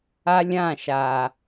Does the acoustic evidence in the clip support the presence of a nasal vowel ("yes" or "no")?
yes